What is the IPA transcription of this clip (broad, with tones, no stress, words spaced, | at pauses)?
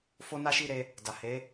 fo˦na˦ʃi˦˨ɾe˧ | da˨he˨˦